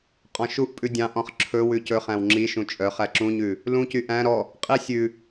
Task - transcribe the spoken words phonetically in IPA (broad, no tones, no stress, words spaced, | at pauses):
qʼɔ̃ʃuʔpʼʉ dʲɑ̃ʔɔ̃χ ǁʰɵ wʉcɵχæ̃w ŋ͡ǁiʃũ t͡ʃʼœ χæǁũɲʉ | lũcy ʔæ̃ ɾɔ | qʼi sʲʉ